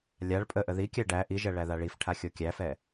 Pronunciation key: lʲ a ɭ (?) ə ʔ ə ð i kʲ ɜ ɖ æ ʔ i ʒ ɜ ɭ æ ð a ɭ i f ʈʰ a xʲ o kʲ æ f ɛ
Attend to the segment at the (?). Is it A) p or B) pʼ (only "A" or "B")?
B